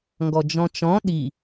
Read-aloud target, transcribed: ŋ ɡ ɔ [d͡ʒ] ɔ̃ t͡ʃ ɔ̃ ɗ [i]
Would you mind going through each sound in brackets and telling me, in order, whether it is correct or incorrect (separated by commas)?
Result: correct, correct